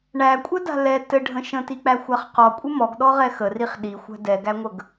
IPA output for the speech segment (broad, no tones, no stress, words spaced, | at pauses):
ɳækʷʼɛda̤ lɛ tɘɖʱə̃ ʃə̃tik͡pæxʷaχ qɔkʷʼə mɔɡɗɔʁɛ xəriχ ɗixʷæ̤ dɛɡæŋʷəɡ